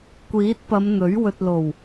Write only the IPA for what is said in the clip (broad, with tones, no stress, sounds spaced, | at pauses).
kʷ iː˨˥ t̚ p ɐ˨˧ m n̪ ɵ˨˥ ɥ w ɵ˨ t̚ l o˨˩ w